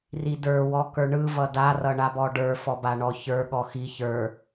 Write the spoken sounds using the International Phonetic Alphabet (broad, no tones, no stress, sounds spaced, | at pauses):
r i d ə˞ w ɔ k ə˞ ɳ ɯ v ʌ d a r ʌ ɳ a b ɔ ɖ ə˞ f ɔ b a ɳ ɔ ç ə˞ ɠ ɔ x i ç ə˞